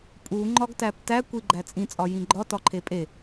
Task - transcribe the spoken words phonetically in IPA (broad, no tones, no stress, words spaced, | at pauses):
pʼu ŋ͡ǃɒɡtæptæ kʷiɡ͡ǃæt͡sʼĩ t͡sʼɒjĩɡ͡ǃɒ tɒǃʰepʼe